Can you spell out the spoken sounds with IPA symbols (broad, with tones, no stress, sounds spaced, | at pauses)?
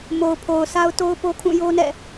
m o˨ ʊ̯ pʰ o˨ ʊ̯ s a˦ ʊ̯ t o˦ ʊ̯ p o˦ kʰ ũ˦˨ j o˦ n ɛ̰˦˨